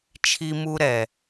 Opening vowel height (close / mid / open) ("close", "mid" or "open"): close